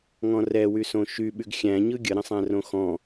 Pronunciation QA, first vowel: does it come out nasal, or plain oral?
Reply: nasal